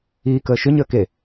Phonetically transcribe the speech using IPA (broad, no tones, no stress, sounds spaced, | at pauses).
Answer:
iː k əː ʃ ʏ ɲ əː k e